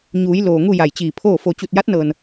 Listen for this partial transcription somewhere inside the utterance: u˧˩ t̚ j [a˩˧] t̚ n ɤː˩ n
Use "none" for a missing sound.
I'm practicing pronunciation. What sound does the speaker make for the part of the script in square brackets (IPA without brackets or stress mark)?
a˧˥